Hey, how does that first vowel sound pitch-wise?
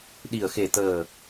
low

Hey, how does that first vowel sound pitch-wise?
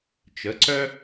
rising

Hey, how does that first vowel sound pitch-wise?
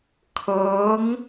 rising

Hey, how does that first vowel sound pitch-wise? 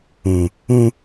low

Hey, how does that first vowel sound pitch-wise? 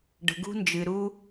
low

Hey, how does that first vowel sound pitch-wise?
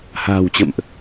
low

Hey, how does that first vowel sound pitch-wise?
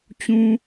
low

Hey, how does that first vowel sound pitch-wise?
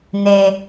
high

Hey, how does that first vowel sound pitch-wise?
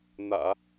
low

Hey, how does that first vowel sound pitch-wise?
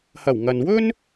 low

